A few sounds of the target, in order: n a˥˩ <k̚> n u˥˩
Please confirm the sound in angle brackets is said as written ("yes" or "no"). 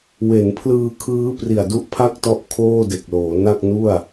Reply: yes